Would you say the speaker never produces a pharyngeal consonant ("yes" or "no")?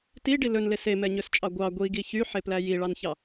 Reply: no